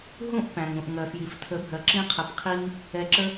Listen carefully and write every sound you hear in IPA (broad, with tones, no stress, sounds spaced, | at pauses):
ɦ ũ˥˩ ʔ p æ̃˩ ŋ ũ˩ ʔ ŋ ɜ˩ f j i˩ f tʰ ə˩˥ bʱ ɜ˩ ǁ ĩ˧ qʰ ə˩ p qʰ i˧ ŋ | ɛ˧ ǁ ə˥